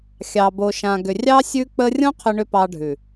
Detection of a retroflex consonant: present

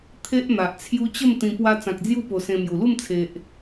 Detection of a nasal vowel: present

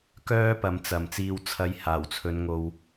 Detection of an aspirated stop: present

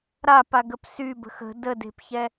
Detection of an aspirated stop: absent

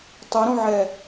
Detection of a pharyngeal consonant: present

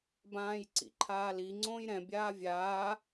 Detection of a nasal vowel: present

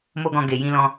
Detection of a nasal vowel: present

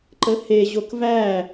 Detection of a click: present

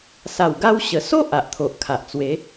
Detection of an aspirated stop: present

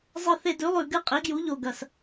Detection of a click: absent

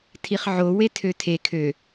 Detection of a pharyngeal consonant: present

